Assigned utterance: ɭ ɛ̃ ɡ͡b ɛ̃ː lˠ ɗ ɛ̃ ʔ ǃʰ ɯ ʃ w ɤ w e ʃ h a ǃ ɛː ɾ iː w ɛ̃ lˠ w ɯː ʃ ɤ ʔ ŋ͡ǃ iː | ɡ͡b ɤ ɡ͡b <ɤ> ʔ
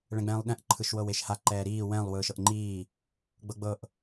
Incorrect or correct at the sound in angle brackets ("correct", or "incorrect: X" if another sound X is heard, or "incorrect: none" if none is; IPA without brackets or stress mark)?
correct